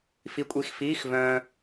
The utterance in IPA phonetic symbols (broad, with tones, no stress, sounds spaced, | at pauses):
f i˧ kʷʼ i˧ x f iː˧˥˧ x v œ̃˧